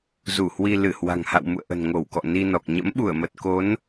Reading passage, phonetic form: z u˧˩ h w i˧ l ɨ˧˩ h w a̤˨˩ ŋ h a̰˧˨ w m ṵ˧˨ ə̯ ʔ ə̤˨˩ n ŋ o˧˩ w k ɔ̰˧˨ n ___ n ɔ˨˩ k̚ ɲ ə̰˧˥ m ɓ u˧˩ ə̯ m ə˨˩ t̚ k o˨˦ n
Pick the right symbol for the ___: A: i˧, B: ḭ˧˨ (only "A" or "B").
A